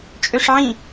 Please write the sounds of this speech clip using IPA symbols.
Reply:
t͡ʃʼ ø ʂ ʕ ĩ

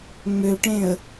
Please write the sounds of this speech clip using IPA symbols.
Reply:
ŋ͡m ø ʈ ẽ ə̯

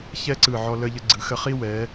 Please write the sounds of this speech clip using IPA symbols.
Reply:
ç ɛ˥ ǀ ɯ˧˩ ʕ ɔ˧ l ə˧ ʎ ə˧ ɡ͡ǀ ɯ˩˧ x ə˧ χ i˥ w ɛ˩˧

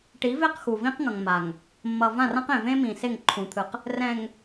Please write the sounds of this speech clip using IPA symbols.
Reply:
ʈ i˨˦ v e˦˨ q x u˨ v ĩ˦ q ŋ ʌ˨ ŋ m a˨ ŋ | mː ʌ˨ v ã˦˨ r ã˦ q ẽ˨ v ẽ˦ m ĩ˨ s e˦˨ ŋ ǃʰ ũ˨ t̪ʰ ɯ˨ q | r ɛ̃˨ ŋ

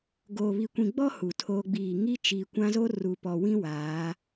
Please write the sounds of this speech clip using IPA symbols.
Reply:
ɡ oː˨ β i˨ kʷ ĩ˨ ɡ͡b ɔ˦ h u˨ tʰ oː˦ ɡ͡b iː˦˨ ŋ i˦ t͡ʃ iː˨ kʷ ã˦ z o˦ r u˨ p ɔ˨ w ĩ˦ w aː˨˦

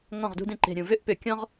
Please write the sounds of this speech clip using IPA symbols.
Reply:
ŋ ɔ̃˥˩ ʁ d ṳ˥ d ẽ˥˩ ǃ e̤˨˩ ɾʲ ũ˨˩ v ʏ˥˩ ʔ p ʏ˧˩˧ kʲ ɔ̃˥ ʁ

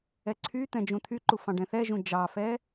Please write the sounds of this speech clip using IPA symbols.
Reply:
ɛ ǀʰ y t̪ ɛ̃ d͡ʒ ũ t̪ʰ y ǃ u f ɑ̃ ɖ ɛ̃ θ ɛ ʒ ũ d͡ʒ ɑ f ɛ

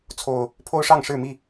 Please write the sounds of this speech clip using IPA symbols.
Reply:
t͡sʰ o˨˩ ʊ̯ | pʰ o˦ ʊ̯ ʂ ɑ˥˨ ŋ ʂ ɻ̩˥˨ m i˥˨

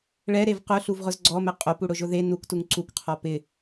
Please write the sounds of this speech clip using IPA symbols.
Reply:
ɭ ɛ ɾ e v q ʊ ɬ u v ʁ ʊ z ɡ͡ǀ ɔ m ɛ qʼ o p u ɽ ʊ ʒ ʊ ð e n u k t u ŋ ǀ u k qʰ ɔ p ɪ

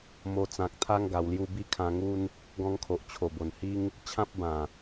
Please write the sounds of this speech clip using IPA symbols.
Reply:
m o˧ t͡s ã˨ k̚ t̪ʰ a˦ ŋ ɡ a˧ w l j u˦ b i˦ kʰ ã˧ ŋ u˦ n | ɡ ɔ̃˦ ŋ kʰ o˨ ʔ t͡ɕʰ o˨˩ b o˨˩ n h i˦ ŋ | t͡ɕʰ ã˦ p̚ b ã˨˩

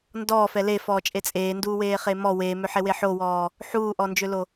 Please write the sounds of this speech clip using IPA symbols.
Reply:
n d ɔː f ɛ l e f ɔː t͡ʃʼ e t͡sʼ eː n d uː w eː χ e m ɔ w eː m ø ħ e w e ħ o w ɔː | ħ uː ʔ ɔ n d͡ʒ ø l o

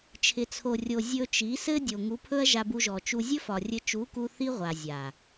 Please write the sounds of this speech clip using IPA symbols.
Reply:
t͡ʃʰ ɪ˨ t͡sʰ o˨ rʲ o˨ zʲ ɵ˧ t͡ʃ i˨˦ s ɘ˦ dʲ o˨ ŋ u˨˦ pʰ ɵ˦ ɐ̯ ʒ a˧ b u˧ ʒ ɔ˨ t͡ʃ u˧ zʲ ɵ˦ f ɒ˨ rʲ ɘ˧ t͡ʃ u˨˦ k u˧ θ i˦ ʁʷ a˨ zʲ a˨

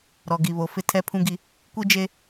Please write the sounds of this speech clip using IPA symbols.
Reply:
ɾ ɔ˨ ɡ i˨ β o˨ f ɪ˦ tʰ ɛ˦ pʰ ũ˦ ɡ i˦ | kʷ i˦ d͡ʒ e˦

